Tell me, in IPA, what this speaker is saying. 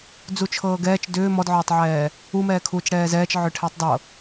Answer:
d͡zut͡ʃʰɤːɡɛːt͡ʃ dʏː mɔdʕɔːtˤʕɛː | umɛːkʰuːt͡ʃ ɽɛːzɛːt͡ʃ ʕʏʈʰɛtˤdˤɤ

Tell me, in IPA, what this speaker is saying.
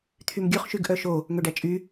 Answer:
t̪ʰymɡʲʉχ ʃyɡʔœʃo | ŋøɖæt͡ʃʼy

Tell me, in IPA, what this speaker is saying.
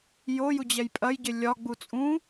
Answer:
jojud͡ʑɛj pʼɐjɟɪ lʲɒ ɡ͡but͡sʼũ

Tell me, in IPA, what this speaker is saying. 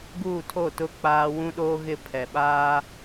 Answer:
ɡuː˦˨ tʰo˦˨tʊ˦˨k͡paː˦ wũ˦ɗoː˦ ɣɪ˦˨ pʰɛ˨ɓaː˦

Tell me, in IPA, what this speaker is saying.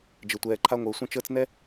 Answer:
d͡ʒə˨ tʷɛː˨ǃʰa˦ ŋʷəː˨sʷə̃˦˨t͡ʃəː˦t͡snɛ˦

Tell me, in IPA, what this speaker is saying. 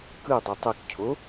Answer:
kɯdˤu tˤikcʰo

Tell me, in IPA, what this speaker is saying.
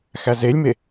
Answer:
xæzelʲme

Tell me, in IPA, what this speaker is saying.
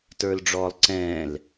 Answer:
tə˞lɖ͡ʐɔːlˠǀɛ̃ːl

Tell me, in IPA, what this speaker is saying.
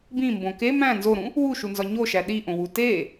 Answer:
bĩmbõ ke mæ̃ nzoɾũ | wuʃunzɒ ɲoʃæ ɗiʔõwu te

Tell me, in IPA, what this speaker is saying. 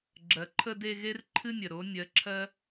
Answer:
ɡ͡ǁɜ˩ǃʰə˥˧de˥˧ɣe˥r ǃʰɨ˥nʲə˩ ɾo˩˥ nʲɜ˩˥ǁʰɜ˥

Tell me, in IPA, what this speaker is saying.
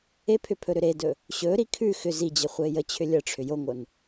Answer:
epʰʏ pʰɵɾʏɾedɵ | ɕɵɾi kʰʉ xʏ zid͡ʑə χʷejət͡ɕʰʏ lʲəʈ͡ʂʰʏ joŋon

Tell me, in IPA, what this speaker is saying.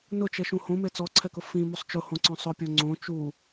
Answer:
nʊt͡ʃɛʃũ hõme t͡sɔǀʰɛkʊ fĩmusˤ t͡ʃʊhõǀɔ̃ sˤʊpʲo ŋ͡ǀõ t͡ʃu

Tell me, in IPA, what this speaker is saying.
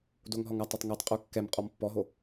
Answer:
doŋɦɔŋatˤɛtˤ ŋɜtˤqʼu kːɛm qʼɔmpːɔɦo

